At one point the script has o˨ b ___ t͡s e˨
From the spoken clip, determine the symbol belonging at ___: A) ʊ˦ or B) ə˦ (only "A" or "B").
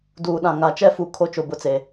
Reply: A